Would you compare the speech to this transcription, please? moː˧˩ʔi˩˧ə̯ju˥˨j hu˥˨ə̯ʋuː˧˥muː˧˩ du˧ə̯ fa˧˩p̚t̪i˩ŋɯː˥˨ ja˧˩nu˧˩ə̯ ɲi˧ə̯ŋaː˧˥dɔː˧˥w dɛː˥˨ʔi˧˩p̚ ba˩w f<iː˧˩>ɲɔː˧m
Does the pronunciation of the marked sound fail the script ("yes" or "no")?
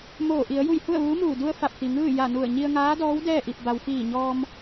no